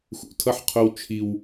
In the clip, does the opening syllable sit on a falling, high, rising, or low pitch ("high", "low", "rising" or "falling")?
high